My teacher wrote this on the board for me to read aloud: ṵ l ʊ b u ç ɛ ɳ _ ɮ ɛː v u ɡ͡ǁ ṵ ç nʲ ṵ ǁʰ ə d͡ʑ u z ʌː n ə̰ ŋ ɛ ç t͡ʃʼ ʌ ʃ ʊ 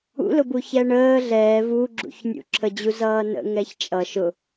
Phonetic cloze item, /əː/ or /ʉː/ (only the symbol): əː